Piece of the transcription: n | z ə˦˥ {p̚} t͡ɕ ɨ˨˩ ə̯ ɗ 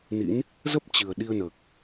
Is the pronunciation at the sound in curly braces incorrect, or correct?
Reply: correct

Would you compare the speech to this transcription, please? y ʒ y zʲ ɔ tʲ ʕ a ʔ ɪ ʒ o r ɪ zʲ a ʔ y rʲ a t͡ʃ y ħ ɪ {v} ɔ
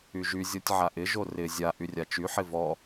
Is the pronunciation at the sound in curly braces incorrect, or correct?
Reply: correct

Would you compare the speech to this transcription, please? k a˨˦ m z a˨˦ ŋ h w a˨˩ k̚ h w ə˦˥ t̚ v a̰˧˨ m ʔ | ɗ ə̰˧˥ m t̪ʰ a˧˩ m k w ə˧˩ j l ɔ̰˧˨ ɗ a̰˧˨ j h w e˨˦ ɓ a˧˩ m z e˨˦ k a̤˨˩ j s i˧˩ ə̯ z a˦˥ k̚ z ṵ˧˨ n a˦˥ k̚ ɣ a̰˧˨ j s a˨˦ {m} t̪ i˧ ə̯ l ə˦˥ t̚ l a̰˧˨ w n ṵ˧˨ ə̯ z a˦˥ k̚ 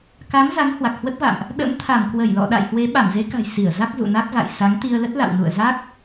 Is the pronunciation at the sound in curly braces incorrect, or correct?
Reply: incorrect: ŋ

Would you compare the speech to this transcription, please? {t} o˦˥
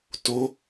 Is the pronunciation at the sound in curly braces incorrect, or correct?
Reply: correct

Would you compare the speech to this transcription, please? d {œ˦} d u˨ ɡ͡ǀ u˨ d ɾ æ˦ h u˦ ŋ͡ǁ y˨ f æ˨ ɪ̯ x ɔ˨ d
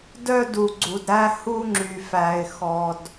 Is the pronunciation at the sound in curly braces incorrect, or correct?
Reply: correct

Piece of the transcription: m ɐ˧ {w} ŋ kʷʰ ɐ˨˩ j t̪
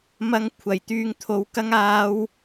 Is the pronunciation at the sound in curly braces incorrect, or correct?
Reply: incorrect: none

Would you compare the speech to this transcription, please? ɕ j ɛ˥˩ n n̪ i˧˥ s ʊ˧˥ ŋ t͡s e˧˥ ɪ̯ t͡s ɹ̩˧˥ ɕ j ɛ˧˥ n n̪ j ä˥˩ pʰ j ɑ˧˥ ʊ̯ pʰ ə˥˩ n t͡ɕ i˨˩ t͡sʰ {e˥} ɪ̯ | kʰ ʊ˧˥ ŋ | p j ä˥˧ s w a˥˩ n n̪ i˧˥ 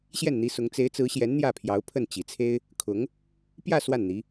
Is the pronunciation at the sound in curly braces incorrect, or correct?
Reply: correct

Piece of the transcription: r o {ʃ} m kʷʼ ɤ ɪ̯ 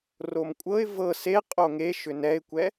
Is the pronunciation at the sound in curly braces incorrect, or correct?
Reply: incorrect: none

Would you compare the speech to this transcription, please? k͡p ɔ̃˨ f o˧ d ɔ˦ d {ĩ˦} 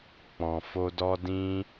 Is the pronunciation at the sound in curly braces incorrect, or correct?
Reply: correct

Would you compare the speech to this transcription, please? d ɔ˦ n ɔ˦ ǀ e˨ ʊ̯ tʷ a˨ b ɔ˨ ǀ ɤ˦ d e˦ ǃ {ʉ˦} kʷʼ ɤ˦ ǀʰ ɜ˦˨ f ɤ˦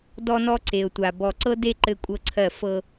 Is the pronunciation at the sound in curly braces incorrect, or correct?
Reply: incorrect: ɘ˦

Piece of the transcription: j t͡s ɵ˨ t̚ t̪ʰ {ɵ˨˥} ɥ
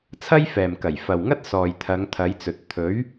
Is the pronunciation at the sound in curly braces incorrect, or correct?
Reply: correct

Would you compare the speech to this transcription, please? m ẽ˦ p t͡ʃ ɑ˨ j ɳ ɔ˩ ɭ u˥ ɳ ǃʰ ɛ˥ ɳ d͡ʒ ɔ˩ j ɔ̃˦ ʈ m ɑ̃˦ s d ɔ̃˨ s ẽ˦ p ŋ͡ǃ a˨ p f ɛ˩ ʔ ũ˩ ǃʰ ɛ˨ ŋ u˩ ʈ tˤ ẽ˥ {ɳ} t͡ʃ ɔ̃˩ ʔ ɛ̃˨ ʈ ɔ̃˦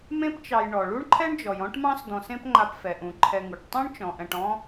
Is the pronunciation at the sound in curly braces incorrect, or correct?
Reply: correct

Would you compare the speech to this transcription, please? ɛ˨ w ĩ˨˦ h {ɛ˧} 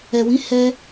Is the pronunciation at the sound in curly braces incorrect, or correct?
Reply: correct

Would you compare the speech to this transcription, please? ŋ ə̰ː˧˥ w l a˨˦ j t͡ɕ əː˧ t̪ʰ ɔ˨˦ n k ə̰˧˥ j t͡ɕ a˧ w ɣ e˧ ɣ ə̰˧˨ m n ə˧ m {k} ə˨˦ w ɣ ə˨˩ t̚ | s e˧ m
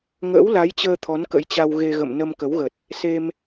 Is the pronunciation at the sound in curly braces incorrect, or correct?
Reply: correct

